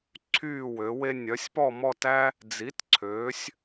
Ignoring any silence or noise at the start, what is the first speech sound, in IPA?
ǀʰ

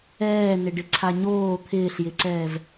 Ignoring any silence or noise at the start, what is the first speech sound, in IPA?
ɛː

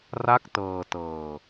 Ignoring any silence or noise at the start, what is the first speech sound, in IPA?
r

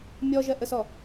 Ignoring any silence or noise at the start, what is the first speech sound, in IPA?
mʲ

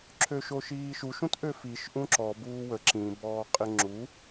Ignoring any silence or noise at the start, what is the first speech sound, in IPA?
ǁʰ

